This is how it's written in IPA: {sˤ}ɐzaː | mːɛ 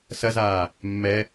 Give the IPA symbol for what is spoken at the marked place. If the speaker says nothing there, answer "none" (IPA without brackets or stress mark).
s